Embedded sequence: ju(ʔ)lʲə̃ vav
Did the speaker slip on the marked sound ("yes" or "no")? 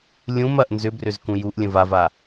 no